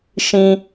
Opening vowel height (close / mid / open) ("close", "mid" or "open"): close